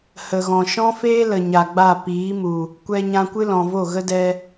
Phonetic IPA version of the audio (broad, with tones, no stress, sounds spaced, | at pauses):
h ə˨ ɣ ɔ̃˨ ʃ ɔ̃˦ f eː˦ l ə˨ ɲ a˨ ɡ͡b a˦˨ p iː˨˦ m u˨ | kʷ ɛ˧ ɲ ã˧ kʷ ɨ˦ l ɔ̃˨ v o˦˨ ɣ ə˦ d ɛ˧